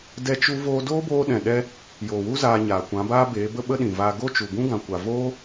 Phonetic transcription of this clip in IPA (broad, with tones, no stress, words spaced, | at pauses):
dɛ˦t͡ʃu˦ voː˧doː˦boː˧ɗɛ̃˨ ɗɛ˦ | joː˨wu˦ zaː˧ɲaː˨ kʷã˨˦baː˦beː˨˦ bə˦ɓə˦ɗĩ˨vaː˧ ɡo˦t͡ʃu˨ɡũ˦ ɡã˨kʷa˨ voː˦